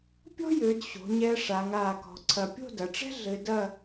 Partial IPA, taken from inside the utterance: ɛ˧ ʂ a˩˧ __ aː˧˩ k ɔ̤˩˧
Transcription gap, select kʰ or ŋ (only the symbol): ŋ